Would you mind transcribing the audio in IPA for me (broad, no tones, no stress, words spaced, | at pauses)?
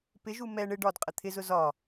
pɪʒu mɛ ɳɪ ɖɒdqʼə t̪ʰɪzʊ zɒ